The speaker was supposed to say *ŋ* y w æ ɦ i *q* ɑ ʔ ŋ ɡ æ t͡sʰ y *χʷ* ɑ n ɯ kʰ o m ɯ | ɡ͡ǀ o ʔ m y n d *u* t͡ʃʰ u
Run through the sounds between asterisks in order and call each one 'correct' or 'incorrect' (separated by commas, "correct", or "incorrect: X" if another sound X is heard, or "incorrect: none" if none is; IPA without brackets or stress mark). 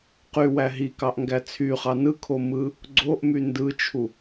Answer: incorrect: q, incorrect: k, incorrect: χ, incorrect: ɯ